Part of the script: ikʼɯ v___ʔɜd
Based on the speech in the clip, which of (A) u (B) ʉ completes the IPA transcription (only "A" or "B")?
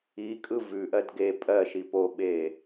B